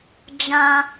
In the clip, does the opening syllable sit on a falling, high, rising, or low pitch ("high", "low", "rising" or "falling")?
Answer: high